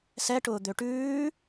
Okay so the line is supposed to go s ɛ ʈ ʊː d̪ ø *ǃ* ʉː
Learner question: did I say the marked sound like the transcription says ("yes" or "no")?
no